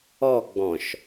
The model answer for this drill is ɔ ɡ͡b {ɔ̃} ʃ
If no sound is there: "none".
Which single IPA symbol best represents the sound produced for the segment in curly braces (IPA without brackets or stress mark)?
ɔ̃